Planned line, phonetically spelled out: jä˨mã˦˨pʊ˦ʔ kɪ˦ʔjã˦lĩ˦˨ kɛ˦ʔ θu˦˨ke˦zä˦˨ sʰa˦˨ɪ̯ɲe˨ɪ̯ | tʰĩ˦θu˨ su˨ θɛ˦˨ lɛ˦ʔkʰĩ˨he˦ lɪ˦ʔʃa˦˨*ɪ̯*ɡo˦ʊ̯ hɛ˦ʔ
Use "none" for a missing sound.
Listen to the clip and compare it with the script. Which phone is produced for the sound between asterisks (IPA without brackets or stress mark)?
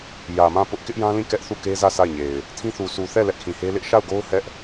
ʊ̯